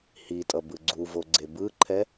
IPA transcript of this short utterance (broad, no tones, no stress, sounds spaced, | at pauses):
h i tʼ ʌ b ɯ ɡ͡ǀ u v o ɡ͡ǀ e b ɯ ǃʰ ɛ